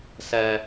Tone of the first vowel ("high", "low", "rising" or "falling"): high